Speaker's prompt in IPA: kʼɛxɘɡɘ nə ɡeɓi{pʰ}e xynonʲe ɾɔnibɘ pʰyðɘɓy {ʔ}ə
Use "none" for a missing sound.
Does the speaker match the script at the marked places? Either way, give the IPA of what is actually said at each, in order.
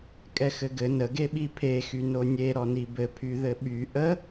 pʰ, ʔ

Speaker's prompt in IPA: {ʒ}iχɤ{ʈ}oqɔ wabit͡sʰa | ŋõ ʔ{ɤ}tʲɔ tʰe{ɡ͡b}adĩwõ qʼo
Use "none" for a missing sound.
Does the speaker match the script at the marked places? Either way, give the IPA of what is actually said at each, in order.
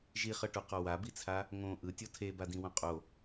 ʒ, ʈ, ɯ, b

